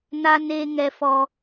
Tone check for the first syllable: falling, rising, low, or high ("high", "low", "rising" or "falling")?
high